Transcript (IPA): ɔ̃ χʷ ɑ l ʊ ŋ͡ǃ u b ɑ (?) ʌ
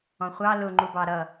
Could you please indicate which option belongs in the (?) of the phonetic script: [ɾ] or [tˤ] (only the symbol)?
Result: ɾ